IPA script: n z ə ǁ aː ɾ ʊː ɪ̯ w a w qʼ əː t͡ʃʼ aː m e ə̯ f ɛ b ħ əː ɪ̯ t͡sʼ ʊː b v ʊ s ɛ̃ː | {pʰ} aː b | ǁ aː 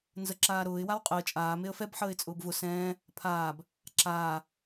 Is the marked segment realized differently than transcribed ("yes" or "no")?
no